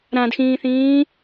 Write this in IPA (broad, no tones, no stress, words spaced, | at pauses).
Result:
ɾãdxĩːθĩː